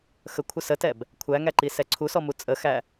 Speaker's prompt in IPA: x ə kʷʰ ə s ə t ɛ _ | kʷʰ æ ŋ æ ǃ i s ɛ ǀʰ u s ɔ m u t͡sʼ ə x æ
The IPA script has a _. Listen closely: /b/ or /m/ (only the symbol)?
b